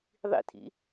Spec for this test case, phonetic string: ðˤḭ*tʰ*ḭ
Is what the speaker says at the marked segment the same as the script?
yes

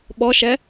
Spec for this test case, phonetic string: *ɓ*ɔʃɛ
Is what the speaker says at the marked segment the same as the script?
yes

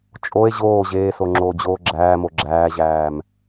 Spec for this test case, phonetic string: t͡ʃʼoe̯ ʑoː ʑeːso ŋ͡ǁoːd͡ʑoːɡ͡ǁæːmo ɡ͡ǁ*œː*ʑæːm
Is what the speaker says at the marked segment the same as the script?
no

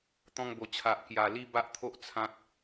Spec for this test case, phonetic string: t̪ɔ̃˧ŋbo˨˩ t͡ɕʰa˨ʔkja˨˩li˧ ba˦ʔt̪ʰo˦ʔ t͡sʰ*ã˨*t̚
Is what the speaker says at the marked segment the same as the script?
no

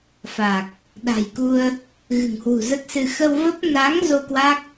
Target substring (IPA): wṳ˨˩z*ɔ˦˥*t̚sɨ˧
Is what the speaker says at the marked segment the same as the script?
no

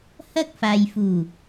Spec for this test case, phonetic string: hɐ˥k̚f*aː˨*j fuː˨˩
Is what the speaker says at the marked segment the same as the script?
yes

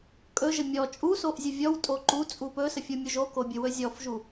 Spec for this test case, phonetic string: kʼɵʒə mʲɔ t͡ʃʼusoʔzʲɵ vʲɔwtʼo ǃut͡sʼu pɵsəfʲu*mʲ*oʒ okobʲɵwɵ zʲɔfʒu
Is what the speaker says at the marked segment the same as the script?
yes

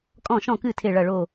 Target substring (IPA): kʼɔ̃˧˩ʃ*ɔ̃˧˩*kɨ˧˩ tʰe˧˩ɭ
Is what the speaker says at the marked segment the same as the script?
yes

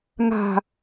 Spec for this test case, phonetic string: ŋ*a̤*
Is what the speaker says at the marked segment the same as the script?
yes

